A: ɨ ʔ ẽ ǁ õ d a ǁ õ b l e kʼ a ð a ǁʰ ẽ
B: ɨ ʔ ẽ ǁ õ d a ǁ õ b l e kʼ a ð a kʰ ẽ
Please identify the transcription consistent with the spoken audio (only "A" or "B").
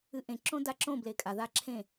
A